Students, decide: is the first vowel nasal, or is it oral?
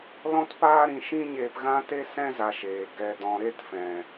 nasal